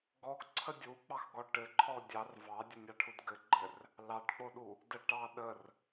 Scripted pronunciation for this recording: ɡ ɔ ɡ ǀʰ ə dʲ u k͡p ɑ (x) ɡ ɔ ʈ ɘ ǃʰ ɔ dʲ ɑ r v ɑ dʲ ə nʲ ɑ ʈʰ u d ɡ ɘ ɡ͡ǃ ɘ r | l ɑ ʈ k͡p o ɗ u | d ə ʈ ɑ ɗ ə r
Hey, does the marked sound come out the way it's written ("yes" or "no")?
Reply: yes